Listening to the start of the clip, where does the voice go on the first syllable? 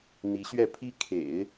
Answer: rising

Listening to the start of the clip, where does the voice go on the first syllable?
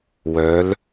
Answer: rising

